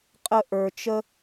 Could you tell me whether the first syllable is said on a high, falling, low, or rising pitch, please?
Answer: high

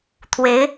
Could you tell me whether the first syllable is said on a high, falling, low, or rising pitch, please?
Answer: rising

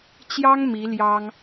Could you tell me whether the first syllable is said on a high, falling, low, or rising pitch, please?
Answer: high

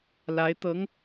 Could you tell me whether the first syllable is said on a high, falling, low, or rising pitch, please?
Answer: rising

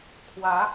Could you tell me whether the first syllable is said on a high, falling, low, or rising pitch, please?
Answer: rising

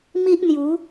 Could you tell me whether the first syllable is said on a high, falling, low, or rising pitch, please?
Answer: high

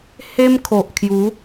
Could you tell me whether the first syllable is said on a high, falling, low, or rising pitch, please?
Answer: high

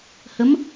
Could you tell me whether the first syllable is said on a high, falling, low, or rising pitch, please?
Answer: rising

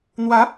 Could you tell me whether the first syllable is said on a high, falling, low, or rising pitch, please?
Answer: rising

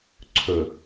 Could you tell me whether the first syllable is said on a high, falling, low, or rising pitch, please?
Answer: low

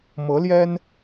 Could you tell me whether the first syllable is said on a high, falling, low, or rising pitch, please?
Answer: rising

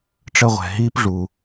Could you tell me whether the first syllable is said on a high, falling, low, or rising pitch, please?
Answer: high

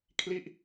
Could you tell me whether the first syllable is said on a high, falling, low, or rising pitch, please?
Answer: falling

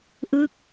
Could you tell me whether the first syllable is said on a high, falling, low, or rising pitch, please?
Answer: falling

